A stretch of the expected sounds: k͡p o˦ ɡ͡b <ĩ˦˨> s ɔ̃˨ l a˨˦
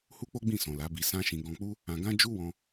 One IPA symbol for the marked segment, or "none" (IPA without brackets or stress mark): ĩ˦˨